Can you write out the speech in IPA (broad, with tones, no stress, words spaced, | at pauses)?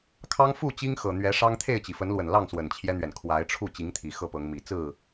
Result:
kʰɑ˦ŋfu˥˨t͡ɕi˦ŋ xɤ˨˩ n̪ɥɛ˨˦ ʂɑ˦ŋt̪ʰe˥˨ɪ̯t͡ɕi˩ fə˨˦nlwə˨˩n lɑ˥˨ŋswə˨˩nt͡ɕʰjɛ˦n̪ɥɛ˩n kʰwa˨˦ɪ̯ʈ͡ʂʰu˥˨ t͡ɕi˨˦ŋt̪ʰi˨˩ xɤ˥˨pɤ˨˦ŋ mi˨˩t͡sɹ̩˥˨